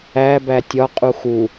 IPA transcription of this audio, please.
æ b æ tʲ ɒ qʼ u x u

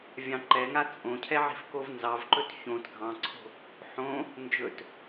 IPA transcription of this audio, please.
vʲ ɑ̃ ǃ ɛ ŋ a t͡sʼ õ cʰ ɛ ʕ i̤ f k o v n z ɑ v ǃ ɵ t ç õ t ɡʱ ɑ̃ ǀʰ o̤ | ħ õ | n d͡ʒ ɵ t

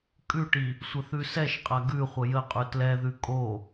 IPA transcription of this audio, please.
kʼ ʉ ʈ i | sʷ ə θ ʉ s ɛ ʃ qʼ a ɡ ʉ χʷ ə j ə qʼ ʉ t l ɛ ð ʉ kʼ o

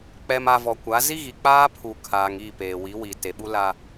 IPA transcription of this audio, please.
k͡p ɛ˨ m a˨ v ɔ˨ kʷ a˨˦ z i˦ ɣ i˨ k͡p aː˦ pʰ u˨ kʰ aː˨ ŋ i˦˨ p eː˨ w i˨˦ w i˨ t e˨ ɓ u˦ l a˦

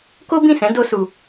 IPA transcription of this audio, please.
k o˦ b ĩ˦˨ s ɛ̃˨˦ d o˦ s u˧

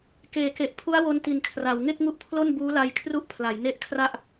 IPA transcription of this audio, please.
k eː˩˦ k e˨˩ ʔ pʰ u˦˥ a̯ w o˧ n t i˨˩ n kʰ r a˩˦ w ŋ e˥˩ k̚ ŋ u˦˥ ʔ pʰ l o˥˩ n b uː˦˥ l a˧ j kʰ r u˦˥ ʔ pʰ l a˩˦ j n e˦˥ ʔ kʰ r a˥˩ ʔ

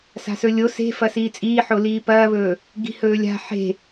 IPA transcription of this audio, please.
s a̤ s ɵ lʲ o s e̤ f ɐ s iː t͡sʼ iː ħ o l iː p ɐː β ɵː | ɡ i̤ h ɵː lʲ a̤ ħ e̤

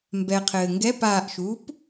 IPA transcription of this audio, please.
m b ɛ qʰ ɘː ŋ ɡ ɛ p aː ʔ ʃ uː p

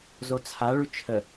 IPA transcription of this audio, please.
z o t͡sʰ a ɭ ʉ t͡ʃʰ ə

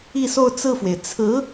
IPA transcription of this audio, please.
i˥˧ s o˥˧ ʊ̯ t͡s ɹ̩˥˩ f w e˩ ɪ̯ t͡sʰ ɹ̩˧˥

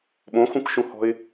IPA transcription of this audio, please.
ɓ õ x ũ k ʃ ũ h ɔ̤ ɪ̯

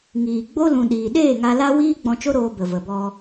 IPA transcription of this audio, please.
ŋ iː˨ ɡ͡b o˦ l ũ˨ ɗ iː˨ ɗ eː˦˨ ŋ a˧ l a˦ w iː˦ ɡ͡b ɔ̃˧ t͡ʃ o˦ ɾ oː˧ b ə˨ v ə˨ b ɔ˧

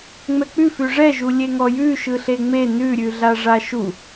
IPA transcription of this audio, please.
ŋ͡m ɛ k͡p ʉ f ʉ ʐ ɛ ʒ u lʲ e ŋ ɔ j ʉ ʃ ɯ ɬ e ŋ͡m e n ʉ ɾʲ ʉ ɮ a ʐ a ʃ u

